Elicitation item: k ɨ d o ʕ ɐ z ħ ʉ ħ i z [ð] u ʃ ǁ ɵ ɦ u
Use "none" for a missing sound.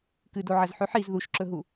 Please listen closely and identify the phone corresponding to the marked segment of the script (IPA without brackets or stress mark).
ð